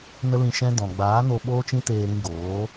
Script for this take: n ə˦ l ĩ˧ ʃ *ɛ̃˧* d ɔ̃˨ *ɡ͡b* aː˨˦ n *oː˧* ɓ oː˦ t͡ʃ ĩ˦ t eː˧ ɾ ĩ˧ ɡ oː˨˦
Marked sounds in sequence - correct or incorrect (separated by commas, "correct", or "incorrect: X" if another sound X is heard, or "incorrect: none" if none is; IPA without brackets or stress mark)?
incorrect: ɛ̃˦, correct, incorrect: o˧